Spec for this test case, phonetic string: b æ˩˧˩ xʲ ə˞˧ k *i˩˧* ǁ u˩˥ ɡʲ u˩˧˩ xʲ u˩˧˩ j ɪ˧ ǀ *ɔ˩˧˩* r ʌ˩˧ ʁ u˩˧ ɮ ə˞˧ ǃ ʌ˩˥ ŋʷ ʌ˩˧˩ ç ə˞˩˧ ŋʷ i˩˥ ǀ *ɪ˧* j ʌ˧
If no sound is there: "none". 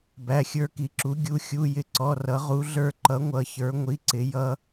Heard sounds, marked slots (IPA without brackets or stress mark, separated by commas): i˩˧, ɔ˩˧˩, ɪ˩˧